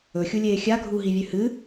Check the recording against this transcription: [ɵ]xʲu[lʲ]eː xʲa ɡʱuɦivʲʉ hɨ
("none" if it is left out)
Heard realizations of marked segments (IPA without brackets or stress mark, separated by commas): ɵ, lʲ